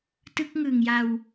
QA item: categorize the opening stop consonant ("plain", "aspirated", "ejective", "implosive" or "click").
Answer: plain